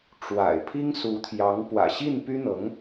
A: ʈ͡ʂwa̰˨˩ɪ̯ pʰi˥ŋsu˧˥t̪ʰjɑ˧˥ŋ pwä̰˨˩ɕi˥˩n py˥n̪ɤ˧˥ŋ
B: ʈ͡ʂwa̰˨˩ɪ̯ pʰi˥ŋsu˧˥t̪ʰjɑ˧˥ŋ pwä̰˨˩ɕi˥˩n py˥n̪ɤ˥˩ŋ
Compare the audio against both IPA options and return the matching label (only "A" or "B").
A